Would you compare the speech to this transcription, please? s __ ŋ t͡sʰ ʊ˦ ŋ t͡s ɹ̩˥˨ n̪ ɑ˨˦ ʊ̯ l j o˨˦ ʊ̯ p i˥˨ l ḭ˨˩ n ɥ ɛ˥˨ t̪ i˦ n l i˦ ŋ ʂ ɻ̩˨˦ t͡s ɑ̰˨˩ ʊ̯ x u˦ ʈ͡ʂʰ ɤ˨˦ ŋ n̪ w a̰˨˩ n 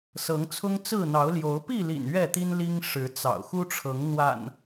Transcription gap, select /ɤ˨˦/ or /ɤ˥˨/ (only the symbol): ɤ˨˦